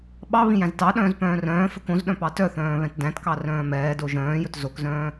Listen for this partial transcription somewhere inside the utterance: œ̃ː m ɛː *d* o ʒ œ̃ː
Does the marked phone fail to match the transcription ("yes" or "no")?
no